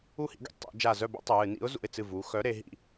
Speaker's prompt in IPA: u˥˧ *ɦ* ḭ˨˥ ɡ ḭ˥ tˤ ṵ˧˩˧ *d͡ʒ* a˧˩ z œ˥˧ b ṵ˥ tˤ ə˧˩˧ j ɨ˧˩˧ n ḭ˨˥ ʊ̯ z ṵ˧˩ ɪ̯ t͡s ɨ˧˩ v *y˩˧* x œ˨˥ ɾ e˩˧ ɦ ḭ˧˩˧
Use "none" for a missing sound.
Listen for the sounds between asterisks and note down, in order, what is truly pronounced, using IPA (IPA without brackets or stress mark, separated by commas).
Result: h, d͡ʒ, u˩˧